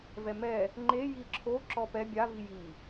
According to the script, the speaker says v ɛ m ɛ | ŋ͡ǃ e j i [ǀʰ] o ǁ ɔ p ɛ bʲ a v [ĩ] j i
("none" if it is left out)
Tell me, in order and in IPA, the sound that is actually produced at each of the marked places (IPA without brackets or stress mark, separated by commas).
ǁʰ, i